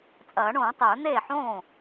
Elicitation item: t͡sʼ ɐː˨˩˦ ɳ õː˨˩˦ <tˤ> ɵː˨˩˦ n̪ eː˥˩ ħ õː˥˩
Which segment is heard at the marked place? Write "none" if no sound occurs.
tˤ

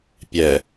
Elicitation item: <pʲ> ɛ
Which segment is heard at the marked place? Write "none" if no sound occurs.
pʲ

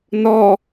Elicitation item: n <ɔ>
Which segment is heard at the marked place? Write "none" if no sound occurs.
ɔ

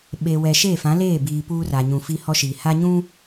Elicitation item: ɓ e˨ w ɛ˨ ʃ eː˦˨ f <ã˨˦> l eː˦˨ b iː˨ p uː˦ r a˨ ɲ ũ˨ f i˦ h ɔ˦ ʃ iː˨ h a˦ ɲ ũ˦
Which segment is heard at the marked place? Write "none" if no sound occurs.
ã˨˦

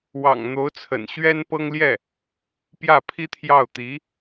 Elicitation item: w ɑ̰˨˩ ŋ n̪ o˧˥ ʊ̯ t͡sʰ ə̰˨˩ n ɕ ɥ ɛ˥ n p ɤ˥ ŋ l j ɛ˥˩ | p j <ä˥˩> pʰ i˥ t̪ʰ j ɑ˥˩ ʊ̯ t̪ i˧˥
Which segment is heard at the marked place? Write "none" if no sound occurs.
ä˥˩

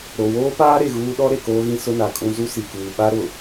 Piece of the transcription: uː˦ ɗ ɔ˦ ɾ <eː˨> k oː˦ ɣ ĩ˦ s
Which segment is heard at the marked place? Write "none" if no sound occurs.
e˨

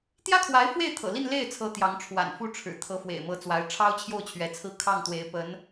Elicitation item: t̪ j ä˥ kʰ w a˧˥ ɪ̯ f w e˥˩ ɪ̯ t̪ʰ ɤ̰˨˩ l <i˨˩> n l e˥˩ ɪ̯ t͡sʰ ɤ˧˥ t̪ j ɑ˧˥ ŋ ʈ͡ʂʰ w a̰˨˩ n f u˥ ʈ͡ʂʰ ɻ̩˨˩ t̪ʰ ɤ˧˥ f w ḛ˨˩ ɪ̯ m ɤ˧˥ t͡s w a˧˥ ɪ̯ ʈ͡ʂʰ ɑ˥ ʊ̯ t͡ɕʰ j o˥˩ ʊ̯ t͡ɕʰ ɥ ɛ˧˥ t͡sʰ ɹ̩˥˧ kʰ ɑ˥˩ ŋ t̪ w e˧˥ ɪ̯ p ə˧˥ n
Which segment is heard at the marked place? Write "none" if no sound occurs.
i˥˧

